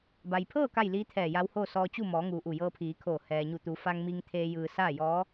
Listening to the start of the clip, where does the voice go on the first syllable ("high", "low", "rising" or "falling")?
low